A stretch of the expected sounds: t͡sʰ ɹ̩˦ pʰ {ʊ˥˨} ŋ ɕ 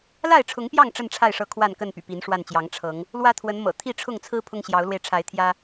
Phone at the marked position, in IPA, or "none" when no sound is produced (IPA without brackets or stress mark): ʊ˦